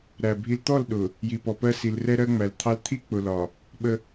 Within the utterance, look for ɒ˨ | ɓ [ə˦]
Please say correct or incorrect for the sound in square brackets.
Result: correct